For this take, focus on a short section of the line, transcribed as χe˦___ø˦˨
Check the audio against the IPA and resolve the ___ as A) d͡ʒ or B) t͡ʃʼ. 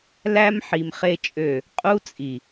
B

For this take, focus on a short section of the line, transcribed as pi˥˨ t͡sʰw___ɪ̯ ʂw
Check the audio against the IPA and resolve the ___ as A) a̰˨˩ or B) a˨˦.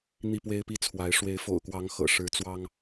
B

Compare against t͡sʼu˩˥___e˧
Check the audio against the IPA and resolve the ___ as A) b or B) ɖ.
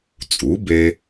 A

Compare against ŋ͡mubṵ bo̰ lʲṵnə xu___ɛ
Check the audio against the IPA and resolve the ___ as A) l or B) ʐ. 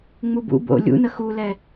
A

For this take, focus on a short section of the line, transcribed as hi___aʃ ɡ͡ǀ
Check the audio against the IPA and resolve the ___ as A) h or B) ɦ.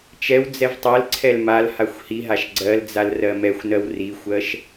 B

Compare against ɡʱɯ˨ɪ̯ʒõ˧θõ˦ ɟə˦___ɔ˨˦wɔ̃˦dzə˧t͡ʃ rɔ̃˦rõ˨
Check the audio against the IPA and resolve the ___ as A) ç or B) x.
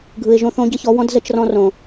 A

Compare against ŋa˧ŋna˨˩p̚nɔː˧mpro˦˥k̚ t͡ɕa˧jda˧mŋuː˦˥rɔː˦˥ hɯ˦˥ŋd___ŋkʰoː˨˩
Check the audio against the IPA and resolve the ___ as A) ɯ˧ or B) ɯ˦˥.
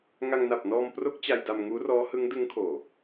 B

